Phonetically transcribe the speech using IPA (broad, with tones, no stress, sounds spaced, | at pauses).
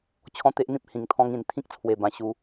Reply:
t͡ɕʰ ɔ̃˦ t̪ e˦ ʔ n̪ ĩ˦ p̚ h ĩ˨˩ ŋ t̪ʰ ɔ̃˧ ŋ ĩ˨˩ n t̪ʰ ĩ˦ k̚ t͡sʰ w e˨˩ b ã˨˩ ɕ u˧